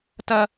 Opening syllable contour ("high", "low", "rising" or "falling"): high